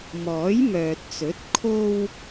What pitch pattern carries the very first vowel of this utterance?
rising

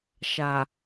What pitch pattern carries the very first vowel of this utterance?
low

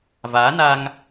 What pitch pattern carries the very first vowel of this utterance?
rising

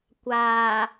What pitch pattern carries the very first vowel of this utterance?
low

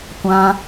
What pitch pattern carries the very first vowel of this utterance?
high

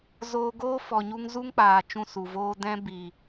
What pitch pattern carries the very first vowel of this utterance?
high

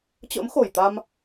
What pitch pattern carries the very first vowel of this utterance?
rising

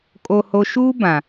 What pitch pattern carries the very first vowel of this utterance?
low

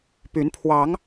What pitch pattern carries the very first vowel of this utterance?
rising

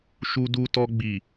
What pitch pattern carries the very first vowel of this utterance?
high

